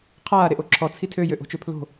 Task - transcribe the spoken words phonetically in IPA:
qʰ aː ɾ e ʔ o ǁʰ ɔ t͡sʰ i tʰ ø j ø ʔ o̤ t͡ʃ ø pʰ l o̤

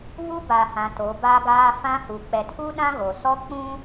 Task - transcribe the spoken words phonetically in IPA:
β u˦ b a˨ h ã˨ t o˨˦ b a˦ ɡ aː˦ f ã˦ h u˨ k͡p ɛ˨ tʰ u˦ ɗ ã˦ ɣ o˨ s ɔ˦ k͡p ũ˦

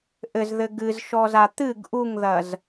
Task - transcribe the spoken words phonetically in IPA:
ʔ ɘ z ð ɘ ɡ ɨ z ʃ ɔ z a t̪ ɨ ɡ ʔ u ŋ ð ɐ z

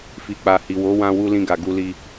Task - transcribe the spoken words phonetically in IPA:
f i˨ k͡p a˨ h i˨ w o˨˦ w ã˧ w u˧ l ĩ˧ ɡ a˨ ɡ u˧ l i˧

